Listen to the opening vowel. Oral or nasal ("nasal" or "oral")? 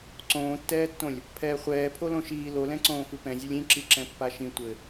nasal